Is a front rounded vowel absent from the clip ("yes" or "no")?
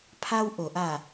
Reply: yes